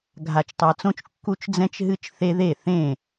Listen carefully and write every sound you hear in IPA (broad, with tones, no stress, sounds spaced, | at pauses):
ɡʱ a˨ t͡ʃ tˤ a˨ t͡s õ˦ t͡ʃ kː u˦ t͡ʃ d͡z ɛ̃˦ t͡ʃ ɦ ɨ˦ t͡ʃ θ e˦ ð e˦˨ θ ẽ˦˨